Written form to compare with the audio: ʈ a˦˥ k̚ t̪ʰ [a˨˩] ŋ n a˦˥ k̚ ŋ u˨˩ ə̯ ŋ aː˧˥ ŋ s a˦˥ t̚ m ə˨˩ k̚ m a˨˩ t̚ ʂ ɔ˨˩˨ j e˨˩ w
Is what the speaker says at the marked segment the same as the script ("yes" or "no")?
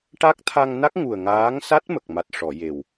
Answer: no